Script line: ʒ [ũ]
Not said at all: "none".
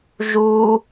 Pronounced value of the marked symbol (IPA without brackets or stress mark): u